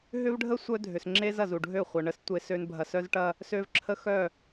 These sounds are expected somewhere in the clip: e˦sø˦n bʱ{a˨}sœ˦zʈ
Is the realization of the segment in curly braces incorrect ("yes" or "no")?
yes